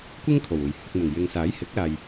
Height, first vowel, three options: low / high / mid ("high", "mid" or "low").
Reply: high